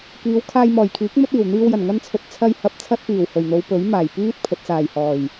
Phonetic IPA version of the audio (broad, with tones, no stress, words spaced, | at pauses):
kiː˨˧wkʰaː˧jmɔː˨˩jkʰiː˨˥k̚ mɵ˥t̚iː˨˩w n̪iː˧wjɐ˨˩n ŋɐ˥nt͡sʰɵ˧t̚ t͡sʰɐ˧j hɐ˨˥p̚t͡sʰɐ˧t̚piː˨˩w hɵ˨˩ɥn̪o˨˧wpɵ˨˥ɥ maː˨˩jpiː˥t̚ pʰɵ˨t̚t͡saː˨˩j hɔː˨˩j